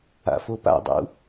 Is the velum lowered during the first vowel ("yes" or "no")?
no